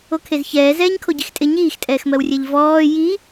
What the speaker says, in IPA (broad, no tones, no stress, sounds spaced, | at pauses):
o kʰ e z ç ɛː z ɛː ɲ kʰ o ɟ i x tʼ ɪ ɲ iː x tʼ ɛː x m ɜ w rʲ ɛ ʎ v ɔː j i